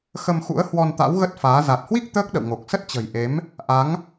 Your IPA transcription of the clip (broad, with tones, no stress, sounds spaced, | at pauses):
x ə˧ m x ṵ˧˥ ə̯ h w ɔ˧ n t̪ a̰˧˥ w ɣ ə˦˥ t̚ f aː˨˦ z a˨˩ t̚ h w i˦˥ k̚ t̪ əː˦˥ k̚ ɗ ə̰˧˨ w ŋ o˨˩ k̚ s ə˦˥ t̚ t͡ɕ ə̤˨˩ j ʔ e˨˦ m | ʔ a˨˦ ŋ